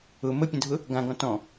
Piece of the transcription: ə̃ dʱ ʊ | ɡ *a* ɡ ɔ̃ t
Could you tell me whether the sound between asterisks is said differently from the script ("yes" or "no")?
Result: yes